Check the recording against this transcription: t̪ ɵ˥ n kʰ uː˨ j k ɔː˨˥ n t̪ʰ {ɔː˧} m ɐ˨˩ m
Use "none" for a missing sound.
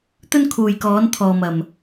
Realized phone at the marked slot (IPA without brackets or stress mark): ɔː˨